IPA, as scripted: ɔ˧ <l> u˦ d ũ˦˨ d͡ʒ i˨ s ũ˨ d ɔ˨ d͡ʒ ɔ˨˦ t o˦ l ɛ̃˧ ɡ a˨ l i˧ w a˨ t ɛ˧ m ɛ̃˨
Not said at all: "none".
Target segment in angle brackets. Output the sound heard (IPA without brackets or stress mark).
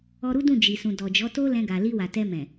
ɾ